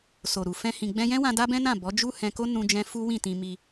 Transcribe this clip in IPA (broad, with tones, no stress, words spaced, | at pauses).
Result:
so˨ɾu˨fɛ̃˧ hĩ˨ɡ͡bɛ̃˧jɛ̃˦wã˧ da˦bɛ̃˦nã˦˨ bɔ˨˦d͡ʒu˦hɛ̃˧ko˦ nũ˧d͡ʒɛ̃˧ fu˦ wĩ˦˨ tĩ˧ mi˧